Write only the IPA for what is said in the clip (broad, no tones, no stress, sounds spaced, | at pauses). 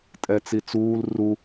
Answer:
tʼ ɛ t͡s i t͡s uː l r u